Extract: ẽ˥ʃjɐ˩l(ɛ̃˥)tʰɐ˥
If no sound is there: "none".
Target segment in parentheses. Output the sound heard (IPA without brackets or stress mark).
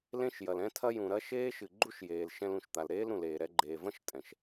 ɛ̃˥